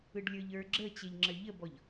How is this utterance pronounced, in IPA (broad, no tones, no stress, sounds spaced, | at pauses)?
ɯ ɖ lʲ ə˞ ʎ ə˞ ɡ͡ǁ ə t͡ɕ e ʎ ŋ͡ǁ ə ʎ ə b ɔ ʎ